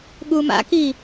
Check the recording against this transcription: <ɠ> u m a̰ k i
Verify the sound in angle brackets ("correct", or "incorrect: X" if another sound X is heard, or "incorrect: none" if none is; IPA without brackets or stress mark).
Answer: correct